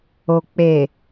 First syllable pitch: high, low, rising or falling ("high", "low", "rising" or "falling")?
low